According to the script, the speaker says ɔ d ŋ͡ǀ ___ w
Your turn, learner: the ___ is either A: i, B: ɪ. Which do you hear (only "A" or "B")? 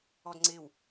B